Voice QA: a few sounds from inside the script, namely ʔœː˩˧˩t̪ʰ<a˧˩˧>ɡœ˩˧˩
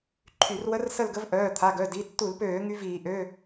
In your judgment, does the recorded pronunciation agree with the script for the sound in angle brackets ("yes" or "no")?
no